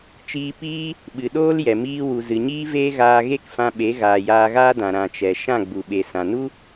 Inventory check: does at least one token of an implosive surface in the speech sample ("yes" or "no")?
yes